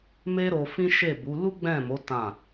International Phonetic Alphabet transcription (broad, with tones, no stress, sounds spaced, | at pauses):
m e˦ ɾ o˧ f ĩ˦ ʃ e˦˨ b u˨˦ l u˦ ɡ͡b ɛ̃˦˨ m o˨˦ t ã˦˨